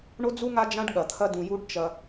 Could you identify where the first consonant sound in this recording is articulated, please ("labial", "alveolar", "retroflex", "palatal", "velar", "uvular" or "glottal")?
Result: retroflex